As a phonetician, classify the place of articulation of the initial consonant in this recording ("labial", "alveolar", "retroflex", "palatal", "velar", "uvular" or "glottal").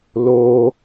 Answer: alveolar